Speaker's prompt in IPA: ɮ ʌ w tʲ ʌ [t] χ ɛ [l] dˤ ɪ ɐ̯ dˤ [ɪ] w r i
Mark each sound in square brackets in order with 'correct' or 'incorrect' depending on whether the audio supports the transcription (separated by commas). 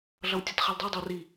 correct, correct, correct